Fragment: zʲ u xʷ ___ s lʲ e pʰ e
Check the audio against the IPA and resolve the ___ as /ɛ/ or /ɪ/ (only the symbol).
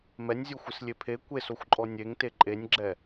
ɪ